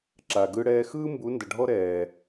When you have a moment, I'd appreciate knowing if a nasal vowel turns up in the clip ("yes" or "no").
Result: no